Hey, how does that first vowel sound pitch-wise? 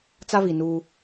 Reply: high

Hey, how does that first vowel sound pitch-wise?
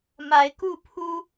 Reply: rising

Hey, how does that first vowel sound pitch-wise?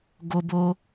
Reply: high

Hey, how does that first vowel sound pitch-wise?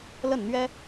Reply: falling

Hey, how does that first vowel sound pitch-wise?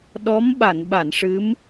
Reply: rising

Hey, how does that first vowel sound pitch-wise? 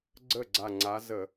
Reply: falling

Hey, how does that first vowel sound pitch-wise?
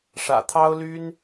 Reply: low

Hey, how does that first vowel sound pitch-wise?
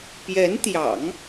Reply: rising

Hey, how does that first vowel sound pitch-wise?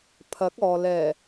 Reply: rising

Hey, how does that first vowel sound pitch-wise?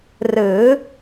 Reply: rising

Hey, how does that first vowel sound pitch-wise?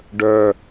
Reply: high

